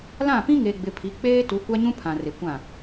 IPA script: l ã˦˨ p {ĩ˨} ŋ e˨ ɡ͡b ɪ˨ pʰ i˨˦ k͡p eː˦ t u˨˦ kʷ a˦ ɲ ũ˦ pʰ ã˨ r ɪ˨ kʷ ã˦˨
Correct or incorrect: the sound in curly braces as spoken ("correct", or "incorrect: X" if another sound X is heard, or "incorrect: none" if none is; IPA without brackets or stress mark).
incorrect: ĩ˦